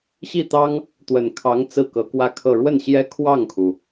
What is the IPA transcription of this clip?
ɕ i˥˩ t̪ ɑ˥ ŋ | t̪ w ə˨˩ n kʰ ɑ˧˥ ŋ t͡s ɹ̩˥˩ k ɤ˧˥ k w ä˥˧ kʰ ɤ˥˧ ɻ w ə˥˩ n ɕ j ɛ˥ kʰ w ɑ˥˩ ŋ kʰ u˩

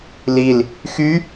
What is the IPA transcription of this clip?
l i l | x y

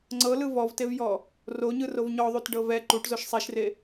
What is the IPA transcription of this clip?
ŋ͡ǀ ɤ l ɯ v ɔ v t e v j ɔ | r o ɲ ɯ r o v ɲ ɔ ðˤ u t ɖ ɤ v ɛ ǃ u ʈ z o ʃ sˤ e ʃ r e

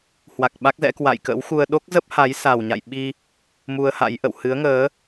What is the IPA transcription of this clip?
h w a˨˩ k̚ ɓ a˦˥ k̚ z ɛ̰˧˥ k w a̰˧˨ j k ə̰˧˥ w x u˧ ə̯ ɗ o˦˥ k̚ z ə˦˥ p̚ h a˨˦ j s a˨˩ w ɲ a̰˧˨ j ɓ i˧ | m u˧ ə̯ h a̰˧˥ j ʔ ə̰˧˨ w h ɨ˨˦ ə̯ ŋ əː˨˦

